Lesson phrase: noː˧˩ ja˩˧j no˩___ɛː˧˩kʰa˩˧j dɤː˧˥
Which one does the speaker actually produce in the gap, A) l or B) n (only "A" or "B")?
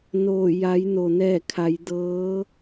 B